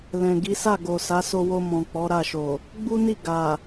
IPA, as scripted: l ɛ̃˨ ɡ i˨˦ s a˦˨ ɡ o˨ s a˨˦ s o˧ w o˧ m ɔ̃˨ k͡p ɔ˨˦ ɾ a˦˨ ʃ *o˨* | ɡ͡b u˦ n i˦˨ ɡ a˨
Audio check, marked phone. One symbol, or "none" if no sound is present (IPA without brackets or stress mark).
o˨